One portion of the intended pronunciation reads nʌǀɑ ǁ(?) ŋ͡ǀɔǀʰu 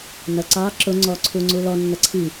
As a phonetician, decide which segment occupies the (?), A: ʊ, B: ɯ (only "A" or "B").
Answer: A